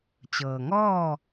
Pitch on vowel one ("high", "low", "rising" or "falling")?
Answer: low